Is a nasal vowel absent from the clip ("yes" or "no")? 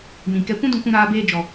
no